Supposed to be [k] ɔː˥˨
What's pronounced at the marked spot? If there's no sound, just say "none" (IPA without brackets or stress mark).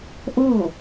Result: ʔ